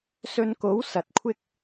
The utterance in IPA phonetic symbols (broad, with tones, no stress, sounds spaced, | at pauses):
s ɵ˧ n k o˨˥ w s ɐ˨˥ t̚ kʷʰ ɪ˥ k̚